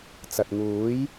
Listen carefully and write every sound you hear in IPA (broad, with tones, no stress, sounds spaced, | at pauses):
t͡s ɐ˨ t̚ ŋ uː˨˥ j